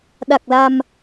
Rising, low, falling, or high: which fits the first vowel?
low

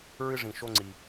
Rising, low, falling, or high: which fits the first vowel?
high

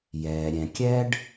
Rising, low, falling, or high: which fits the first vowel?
low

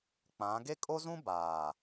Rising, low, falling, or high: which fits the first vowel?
rising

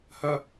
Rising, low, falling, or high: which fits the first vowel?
high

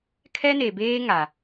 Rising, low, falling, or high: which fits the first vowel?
high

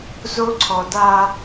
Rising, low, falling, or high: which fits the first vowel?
high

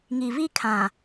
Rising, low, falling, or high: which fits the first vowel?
low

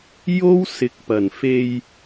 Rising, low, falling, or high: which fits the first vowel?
high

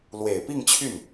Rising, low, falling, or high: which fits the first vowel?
low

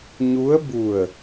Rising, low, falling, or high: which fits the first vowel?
rising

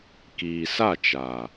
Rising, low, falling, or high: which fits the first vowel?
low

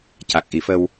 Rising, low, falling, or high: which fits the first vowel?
low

